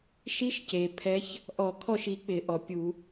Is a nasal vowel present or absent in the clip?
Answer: absent